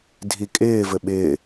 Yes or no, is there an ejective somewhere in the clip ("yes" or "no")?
yes